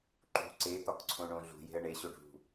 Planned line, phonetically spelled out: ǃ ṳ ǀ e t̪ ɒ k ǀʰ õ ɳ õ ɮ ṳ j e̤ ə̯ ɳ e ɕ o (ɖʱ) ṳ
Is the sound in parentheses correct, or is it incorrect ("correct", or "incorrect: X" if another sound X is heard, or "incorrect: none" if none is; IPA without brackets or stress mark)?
correct